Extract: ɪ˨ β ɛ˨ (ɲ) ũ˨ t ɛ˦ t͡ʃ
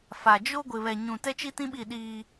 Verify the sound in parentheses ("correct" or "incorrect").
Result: correct